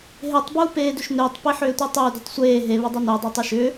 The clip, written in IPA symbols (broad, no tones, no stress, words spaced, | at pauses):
ɦetˤ buːpeːdʏʃnʏːtˤ piħʏːtʷitˤʏː dətˤsʷeː ɦe βʏdˤuno dˤoːtˤiʃʏː